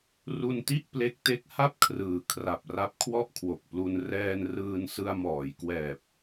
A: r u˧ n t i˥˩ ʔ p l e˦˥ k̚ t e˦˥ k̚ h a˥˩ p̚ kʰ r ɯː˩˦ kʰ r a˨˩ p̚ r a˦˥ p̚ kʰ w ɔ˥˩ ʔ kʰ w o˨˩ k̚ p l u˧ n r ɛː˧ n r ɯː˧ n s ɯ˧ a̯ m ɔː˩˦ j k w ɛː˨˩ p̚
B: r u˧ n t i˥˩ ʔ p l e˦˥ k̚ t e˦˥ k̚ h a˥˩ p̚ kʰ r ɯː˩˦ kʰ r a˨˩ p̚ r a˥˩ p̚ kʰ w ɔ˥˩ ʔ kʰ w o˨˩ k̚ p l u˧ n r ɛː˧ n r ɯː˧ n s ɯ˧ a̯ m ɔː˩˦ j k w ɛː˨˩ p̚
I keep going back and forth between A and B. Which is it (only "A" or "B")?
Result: A